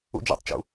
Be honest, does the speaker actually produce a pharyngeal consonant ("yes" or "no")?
no